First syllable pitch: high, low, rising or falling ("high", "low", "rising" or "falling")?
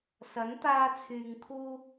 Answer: rising